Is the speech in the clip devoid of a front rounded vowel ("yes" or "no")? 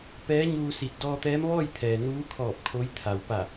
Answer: yes